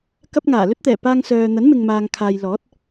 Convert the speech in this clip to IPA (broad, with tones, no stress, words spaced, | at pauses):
kɐ˧p̚ ŋaː˨˩lɵ˥t̚t̪ɛː˨˩ paː˧ŋ sœː˨ n̪ɐ˨˥nmɪ˨ŋmaː˨ŋkʰaː˨j lɔː˨˥t̚